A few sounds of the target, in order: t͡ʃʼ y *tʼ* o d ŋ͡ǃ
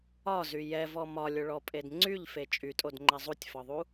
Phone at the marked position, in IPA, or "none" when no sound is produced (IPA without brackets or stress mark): tʼ